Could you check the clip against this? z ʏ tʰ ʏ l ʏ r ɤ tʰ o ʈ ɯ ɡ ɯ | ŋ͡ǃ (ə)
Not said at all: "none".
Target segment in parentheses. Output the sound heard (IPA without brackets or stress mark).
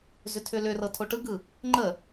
ə